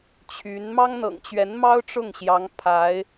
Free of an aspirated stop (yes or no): no